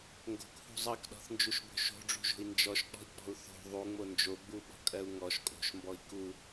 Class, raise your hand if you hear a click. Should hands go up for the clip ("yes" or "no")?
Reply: no